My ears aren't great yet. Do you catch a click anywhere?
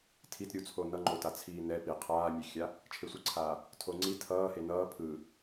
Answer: yes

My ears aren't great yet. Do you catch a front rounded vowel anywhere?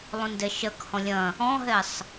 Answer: no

